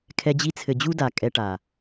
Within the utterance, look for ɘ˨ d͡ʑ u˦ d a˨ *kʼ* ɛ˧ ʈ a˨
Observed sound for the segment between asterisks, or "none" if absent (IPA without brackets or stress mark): kʼ